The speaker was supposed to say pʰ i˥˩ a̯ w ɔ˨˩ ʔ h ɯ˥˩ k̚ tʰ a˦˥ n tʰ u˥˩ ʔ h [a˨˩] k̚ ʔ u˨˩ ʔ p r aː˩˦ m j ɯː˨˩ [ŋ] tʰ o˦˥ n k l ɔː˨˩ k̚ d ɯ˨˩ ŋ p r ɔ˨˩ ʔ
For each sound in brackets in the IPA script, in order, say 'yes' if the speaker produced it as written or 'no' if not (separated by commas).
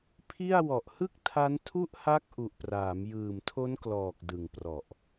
no, no